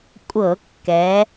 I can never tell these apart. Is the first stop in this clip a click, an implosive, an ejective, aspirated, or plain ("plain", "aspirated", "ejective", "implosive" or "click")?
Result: ejective